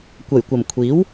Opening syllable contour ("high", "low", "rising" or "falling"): low